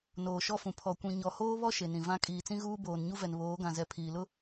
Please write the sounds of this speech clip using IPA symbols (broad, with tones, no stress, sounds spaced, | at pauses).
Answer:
n oː˨ ʃ ɔ˦ f ũ˨ pʰ ɔ˨ kʷ ĩ˨ ɲ ɔ˨ h oː˦ β ɔ˦ ʃ e˨ n ĩ˨ v ã˦ kʼ iː˨ t͡s ĩ˦ ɣ uː˦ b oː˨ n ɲ u˦ v ɛ˨ n β oː˨˦ ɡ ã˨ z ɛ˨ pʰ iː˨ l ʊ˦